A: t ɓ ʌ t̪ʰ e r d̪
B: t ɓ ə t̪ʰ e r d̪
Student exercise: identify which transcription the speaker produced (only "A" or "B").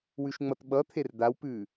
A